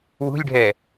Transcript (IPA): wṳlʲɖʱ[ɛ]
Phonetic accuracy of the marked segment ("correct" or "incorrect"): correct